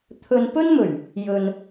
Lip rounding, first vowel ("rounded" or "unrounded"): rounded